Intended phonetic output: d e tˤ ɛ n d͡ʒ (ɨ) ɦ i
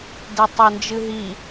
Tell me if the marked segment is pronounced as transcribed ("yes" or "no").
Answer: yes